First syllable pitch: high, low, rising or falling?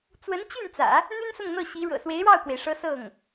rising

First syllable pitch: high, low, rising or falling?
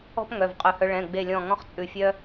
high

